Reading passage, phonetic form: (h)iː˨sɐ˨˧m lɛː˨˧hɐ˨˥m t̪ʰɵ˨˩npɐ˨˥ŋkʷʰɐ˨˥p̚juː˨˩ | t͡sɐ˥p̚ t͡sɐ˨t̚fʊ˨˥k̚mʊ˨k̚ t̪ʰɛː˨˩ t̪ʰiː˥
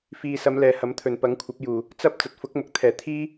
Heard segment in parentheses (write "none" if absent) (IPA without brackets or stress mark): f